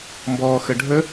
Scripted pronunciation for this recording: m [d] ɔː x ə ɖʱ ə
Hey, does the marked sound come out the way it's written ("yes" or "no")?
no